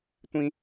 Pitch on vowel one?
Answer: high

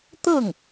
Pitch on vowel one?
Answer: falling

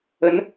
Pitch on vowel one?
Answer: rising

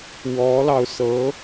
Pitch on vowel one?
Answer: rising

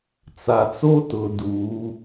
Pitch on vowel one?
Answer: low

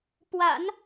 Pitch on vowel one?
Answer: low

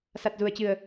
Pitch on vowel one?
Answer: low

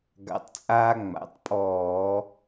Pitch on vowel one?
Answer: rising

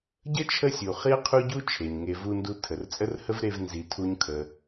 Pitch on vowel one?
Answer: high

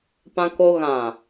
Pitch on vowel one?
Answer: high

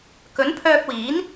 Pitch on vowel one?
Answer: rising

